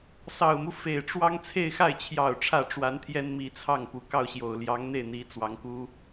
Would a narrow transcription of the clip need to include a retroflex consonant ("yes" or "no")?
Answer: yes